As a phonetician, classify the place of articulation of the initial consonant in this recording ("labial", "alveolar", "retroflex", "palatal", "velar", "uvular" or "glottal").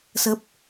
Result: alveolar